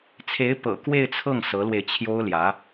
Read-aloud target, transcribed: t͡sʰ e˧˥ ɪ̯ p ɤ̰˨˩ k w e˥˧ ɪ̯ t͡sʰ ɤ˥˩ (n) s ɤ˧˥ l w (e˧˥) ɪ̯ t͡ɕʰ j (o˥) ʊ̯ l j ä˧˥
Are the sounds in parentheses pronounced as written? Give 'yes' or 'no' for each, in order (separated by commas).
no, no, yes